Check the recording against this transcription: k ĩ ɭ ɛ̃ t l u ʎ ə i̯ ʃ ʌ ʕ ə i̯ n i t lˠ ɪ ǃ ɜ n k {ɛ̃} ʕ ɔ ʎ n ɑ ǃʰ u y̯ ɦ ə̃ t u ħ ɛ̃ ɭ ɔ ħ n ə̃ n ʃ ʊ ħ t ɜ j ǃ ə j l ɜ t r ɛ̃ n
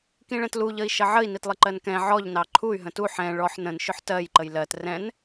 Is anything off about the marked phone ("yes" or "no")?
no